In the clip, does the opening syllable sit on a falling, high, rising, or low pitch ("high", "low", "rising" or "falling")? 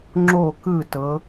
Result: falling